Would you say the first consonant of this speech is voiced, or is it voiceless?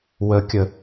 voiced